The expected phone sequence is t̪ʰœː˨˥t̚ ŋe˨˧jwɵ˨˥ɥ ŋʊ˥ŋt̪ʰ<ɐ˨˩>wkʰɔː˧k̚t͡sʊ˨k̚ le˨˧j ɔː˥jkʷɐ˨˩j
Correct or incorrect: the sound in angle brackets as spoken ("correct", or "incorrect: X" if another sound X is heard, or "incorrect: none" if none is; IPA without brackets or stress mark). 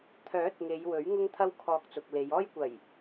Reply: incorrect: ɐ˥